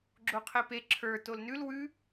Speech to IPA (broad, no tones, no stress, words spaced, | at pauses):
ɡ͡ǁoqʰepe ǁʰə˞ tolnʉl wʉ